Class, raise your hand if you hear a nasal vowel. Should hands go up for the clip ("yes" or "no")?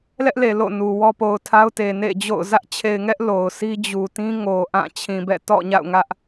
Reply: yes